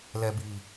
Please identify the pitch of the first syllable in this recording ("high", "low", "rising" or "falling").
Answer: low